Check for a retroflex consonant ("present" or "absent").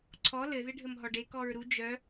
present